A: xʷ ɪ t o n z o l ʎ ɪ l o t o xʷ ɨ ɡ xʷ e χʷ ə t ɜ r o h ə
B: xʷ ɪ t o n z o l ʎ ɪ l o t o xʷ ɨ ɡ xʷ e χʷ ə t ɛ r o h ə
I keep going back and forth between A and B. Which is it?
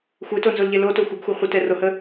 B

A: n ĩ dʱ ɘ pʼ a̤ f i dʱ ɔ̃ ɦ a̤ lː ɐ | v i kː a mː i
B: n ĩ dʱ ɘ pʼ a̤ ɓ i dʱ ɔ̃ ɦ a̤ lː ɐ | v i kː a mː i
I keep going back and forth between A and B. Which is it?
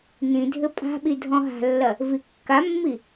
B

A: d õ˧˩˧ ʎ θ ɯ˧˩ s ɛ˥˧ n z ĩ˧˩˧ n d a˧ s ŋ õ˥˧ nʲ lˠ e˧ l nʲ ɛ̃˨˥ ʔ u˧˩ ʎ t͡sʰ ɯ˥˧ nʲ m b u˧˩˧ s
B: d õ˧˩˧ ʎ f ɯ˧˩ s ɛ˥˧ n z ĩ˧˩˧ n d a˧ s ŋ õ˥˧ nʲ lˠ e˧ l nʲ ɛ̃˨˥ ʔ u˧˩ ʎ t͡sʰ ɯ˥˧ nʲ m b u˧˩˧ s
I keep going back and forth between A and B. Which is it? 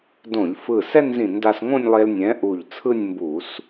B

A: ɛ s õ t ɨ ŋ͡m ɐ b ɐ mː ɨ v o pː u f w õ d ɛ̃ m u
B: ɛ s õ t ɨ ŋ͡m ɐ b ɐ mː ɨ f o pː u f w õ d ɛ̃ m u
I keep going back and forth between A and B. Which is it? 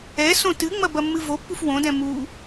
A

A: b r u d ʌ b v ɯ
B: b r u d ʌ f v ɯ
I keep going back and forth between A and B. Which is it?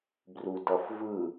B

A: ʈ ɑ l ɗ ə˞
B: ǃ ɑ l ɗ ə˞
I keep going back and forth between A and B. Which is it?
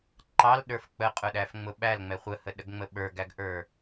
B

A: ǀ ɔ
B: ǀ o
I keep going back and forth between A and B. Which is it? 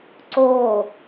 B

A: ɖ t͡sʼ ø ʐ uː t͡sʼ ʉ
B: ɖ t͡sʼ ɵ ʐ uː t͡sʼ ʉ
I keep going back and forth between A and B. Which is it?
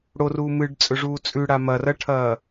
B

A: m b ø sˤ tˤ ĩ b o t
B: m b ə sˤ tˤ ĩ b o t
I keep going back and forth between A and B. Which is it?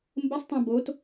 B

